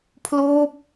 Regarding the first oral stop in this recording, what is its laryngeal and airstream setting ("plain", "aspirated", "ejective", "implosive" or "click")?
aspirated